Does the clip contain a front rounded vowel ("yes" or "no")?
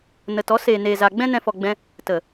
no